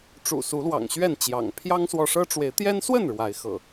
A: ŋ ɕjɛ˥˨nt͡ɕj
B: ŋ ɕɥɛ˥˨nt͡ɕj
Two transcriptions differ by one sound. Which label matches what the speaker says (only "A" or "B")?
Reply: B